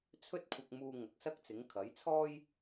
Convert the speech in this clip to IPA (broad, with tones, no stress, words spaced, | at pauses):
t͡sʰɵ˥t̚kʷʰɐ˧k̚muː˧ ŋɐ˨˥k̚sɐ˥k̚t͡sɪ˨˥ŋ kʰɐ˨˥jt͡sʰɔː˥j